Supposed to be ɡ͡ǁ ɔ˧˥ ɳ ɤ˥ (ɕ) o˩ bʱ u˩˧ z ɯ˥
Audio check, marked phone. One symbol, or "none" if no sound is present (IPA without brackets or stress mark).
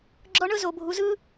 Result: z